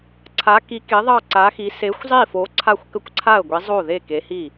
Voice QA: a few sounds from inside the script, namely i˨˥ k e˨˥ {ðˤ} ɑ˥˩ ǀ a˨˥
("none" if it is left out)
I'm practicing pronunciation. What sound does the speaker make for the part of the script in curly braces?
ðˤ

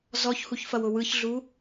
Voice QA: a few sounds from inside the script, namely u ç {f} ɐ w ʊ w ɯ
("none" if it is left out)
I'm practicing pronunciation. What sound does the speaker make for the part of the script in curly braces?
f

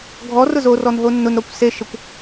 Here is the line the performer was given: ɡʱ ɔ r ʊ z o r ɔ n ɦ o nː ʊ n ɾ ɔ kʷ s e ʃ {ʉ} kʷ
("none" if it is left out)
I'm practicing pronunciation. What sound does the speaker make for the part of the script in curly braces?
ə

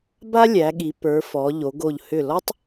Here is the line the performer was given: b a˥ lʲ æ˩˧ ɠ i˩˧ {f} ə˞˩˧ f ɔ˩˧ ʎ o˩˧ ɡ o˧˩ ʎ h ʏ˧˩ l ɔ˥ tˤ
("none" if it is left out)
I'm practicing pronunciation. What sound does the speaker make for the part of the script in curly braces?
p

